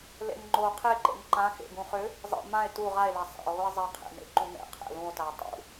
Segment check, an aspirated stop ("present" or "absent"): present